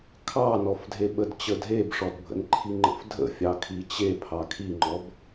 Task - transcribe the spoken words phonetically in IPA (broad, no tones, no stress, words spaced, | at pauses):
kʰɑnɔfdʱeɓəd t͡ɕədʱebʂɔdbʱə̰n ǃʰiŋ͡ǃə̰fdʱə̰ fʲɑkʰit͡ɕe pʰɑkʰiŋ͡ǃɔb